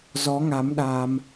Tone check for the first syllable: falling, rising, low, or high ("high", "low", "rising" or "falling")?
rising